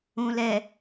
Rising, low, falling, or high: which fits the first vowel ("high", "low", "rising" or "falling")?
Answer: low